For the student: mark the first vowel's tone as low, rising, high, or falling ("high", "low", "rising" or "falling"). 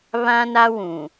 high